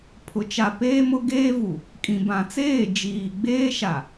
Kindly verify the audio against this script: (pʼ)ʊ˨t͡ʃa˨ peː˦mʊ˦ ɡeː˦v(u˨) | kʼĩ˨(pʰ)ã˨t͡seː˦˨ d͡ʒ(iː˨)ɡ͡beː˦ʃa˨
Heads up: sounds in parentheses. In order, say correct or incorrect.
incorrect: pʰ, correct, incorrect: b, correct

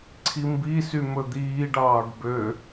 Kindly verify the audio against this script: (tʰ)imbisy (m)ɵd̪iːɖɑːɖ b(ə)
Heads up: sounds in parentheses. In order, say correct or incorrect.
incorrect: ǀʰ, correct, incorrect: ø

